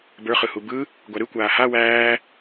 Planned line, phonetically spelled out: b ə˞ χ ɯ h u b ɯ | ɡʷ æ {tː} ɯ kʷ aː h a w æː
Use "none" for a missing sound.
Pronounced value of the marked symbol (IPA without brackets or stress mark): ɾ